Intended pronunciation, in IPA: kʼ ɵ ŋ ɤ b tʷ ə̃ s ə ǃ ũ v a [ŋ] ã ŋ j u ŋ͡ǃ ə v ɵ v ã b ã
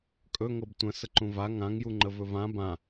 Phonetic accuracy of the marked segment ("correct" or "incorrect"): correct